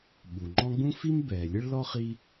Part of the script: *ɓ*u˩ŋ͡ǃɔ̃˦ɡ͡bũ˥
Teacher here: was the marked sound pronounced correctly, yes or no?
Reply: yes